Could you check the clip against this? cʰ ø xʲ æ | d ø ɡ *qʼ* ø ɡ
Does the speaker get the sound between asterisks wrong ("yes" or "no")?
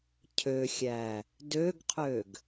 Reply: yes